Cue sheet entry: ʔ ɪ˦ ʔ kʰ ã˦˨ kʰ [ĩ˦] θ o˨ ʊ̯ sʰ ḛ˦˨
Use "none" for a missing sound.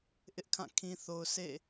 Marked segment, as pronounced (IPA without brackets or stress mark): ĩ˨